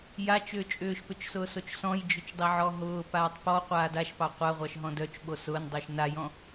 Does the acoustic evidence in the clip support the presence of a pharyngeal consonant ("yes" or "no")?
yes